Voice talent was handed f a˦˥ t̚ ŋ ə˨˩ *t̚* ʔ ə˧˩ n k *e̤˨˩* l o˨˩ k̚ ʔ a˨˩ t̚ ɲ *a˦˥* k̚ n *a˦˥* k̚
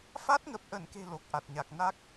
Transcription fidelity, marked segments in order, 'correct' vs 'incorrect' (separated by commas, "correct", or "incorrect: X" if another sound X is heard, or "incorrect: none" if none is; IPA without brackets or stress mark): incorrect: p̚, correct, incorrect: a˨˩, correct